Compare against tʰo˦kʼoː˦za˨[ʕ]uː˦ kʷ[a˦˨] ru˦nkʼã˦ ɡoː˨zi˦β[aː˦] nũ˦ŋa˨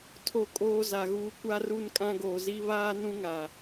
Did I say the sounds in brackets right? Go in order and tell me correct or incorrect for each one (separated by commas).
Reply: incorrect, incorrect, correct